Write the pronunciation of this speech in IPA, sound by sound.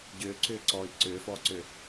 ɟ ʏː ǀ ʏː ǀ ɔː i̯ ǀ ʏː f ɔː ǀ ʏ

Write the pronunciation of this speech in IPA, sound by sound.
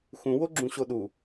x ũ w o ɡ͡ǁ ũ ɕ o ɗ u

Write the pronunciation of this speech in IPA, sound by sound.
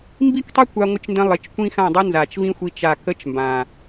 m b i˦ k tˤ ɛ˦ kʷ a˧ ŋʷ ə˧ t͡ʃ n d ə̃˧ lˠ ɪ˨˦ t͡ʃ kʷ ĩ˦ x ã˦˨ dˤ ɛ˦ n z a˨ t͡ʃ v ĩ˦ xʷ i˦ t͡ʃ a˦˨ k ə˦ t͡ʃ m b ã˨

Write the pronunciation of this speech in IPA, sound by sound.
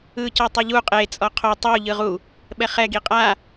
ɯ c ɤ tˤ ɯ ʎ u qʼ e t͡sʼ ɔ qʰ o tˤ u ʎ ɯ ʁ u | ɓ ɛ χ ɛ ɡ i qʼ a

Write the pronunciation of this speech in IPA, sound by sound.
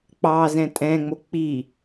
k͡p ɑ z ɛ̃ tʼ ɛ̃ ŋ͡m o k͡p i

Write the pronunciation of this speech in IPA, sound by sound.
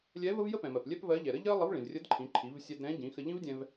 lʲ ɛ˧˥ v ə˥ v j ə˥ p ɛ̃˩ m ɜ˩ p lʲ ɛ˥ p v ɜ˧˥ ʎ ɛ˩ ɾ ə˥ ʎ ɜ˥ lˠ ə˧˥ v ɭ ĩ˩ v rʲ ə˧˥ d ǃʰ ĩ˩˧ ǃʰ i˩˧ v sʲ ɛ˧ d ɾ ɛ̃˧˥ ɟ ĩ˩˧ x ə˧ ʎ ĩ˥ v dʲ ɛ̃˧ v

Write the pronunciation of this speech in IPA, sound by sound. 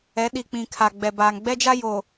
ɛ˨˦ ɗ i˨ k͡p ĩ˨ kʰ a˨ ɡ͡b ɛ˨ b aː˨ ŋ ɡ͡b ɛ˦ d͡ʒ a˦ j o˨

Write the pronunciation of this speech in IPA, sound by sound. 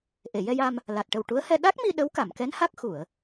ʔ e˨˩˨ j ɛ˧ j a˧ m | l a˨˩ t̚ ʈ ə˨˩ w ʈ u˧˥ ə̯ h ɛ˧ ɗ a˦˥ k̚ m i˧ ɗ ə˧˥ w k a˨˩˨ m k ɛ˧˥ n h a˦˥ k̚ x u˨˩˨ ə̯

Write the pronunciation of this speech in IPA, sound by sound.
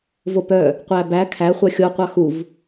v o p œ | qʷ æ b æ kʰ æ χʷ œ xʲ o qʷ ɑ x u v

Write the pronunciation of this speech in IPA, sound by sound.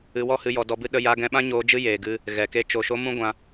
ɨ˧ w ɔ˦ h ɨ˧ j ɔ˧ d ɔ˧ b ɨ˦ ɗ ə˧ j a˧ ɡ ɛ̃˧ ɓ ã˦ ɲ oː˧ d͡ʒ ɨ˦ j eː˨ ɡ ɨ˧ | ɣ ɛ˨ k e˧ t͡ʃ o˨ ʃ o˧ m ũ˦ ɡʷ ã˧

